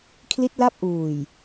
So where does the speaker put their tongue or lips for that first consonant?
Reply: velum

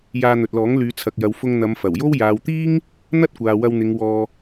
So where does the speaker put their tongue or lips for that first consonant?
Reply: palate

